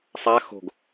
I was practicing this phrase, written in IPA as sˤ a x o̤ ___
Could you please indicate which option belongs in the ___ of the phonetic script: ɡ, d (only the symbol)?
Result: ɡ